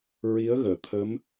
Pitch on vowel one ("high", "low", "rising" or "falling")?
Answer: rising